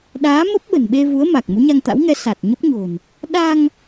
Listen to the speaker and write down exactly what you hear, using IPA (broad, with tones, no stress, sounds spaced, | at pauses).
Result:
ɗ aː˨˦ m ə˦˥ p̚ ɓ ə̤˨˩ n ɓ e˧ v u˨˦ ə̯ m a˨˩ k̚ m u˨˦ ɲ a˧ ŋ t̪ a̰˧˥ w ŋ ɛ˨˦ s a˨˩ t̚ ɲ ə˦˥ p̚ ɲ o̤˨˩ n | ɗ a˧ ŋ